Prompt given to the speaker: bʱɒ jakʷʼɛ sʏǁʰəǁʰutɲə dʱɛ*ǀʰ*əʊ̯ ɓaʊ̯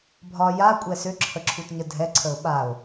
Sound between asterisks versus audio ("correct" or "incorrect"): correct